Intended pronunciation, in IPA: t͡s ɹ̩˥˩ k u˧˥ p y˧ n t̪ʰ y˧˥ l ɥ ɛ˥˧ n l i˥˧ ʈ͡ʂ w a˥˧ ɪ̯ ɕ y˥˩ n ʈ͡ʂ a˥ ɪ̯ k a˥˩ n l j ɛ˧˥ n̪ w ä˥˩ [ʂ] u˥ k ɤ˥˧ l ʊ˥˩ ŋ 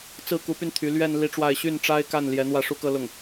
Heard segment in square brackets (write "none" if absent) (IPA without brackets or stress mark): ʂ